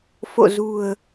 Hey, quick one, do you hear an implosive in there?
no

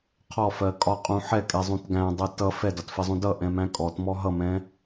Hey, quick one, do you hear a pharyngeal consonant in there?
yes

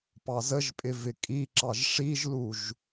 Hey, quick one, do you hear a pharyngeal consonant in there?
no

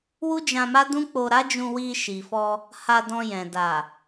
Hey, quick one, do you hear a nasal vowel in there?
yes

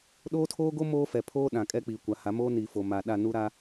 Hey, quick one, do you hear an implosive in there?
yes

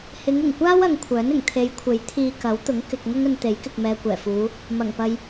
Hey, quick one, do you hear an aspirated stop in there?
yes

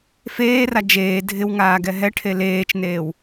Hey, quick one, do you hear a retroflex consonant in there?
yes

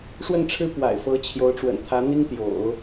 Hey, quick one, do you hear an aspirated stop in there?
yes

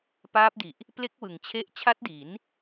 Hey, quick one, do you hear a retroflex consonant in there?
no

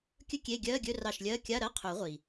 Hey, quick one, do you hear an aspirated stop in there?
yes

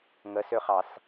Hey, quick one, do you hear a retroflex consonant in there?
no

